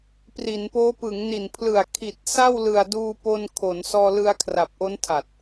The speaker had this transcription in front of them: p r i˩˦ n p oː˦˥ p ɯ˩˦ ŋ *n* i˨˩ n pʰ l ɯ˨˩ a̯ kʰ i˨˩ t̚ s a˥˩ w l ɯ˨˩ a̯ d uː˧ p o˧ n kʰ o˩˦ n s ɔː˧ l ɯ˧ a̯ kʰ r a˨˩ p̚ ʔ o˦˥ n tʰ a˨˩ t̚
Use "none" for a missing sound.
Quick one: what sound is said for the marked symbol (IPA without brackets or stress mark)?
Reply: n